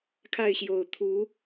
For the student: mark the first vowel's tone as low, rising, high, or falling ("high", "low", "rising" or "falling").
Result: falling